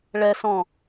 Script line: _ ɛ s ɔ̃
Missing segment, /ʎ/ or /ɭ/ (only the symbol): ɭ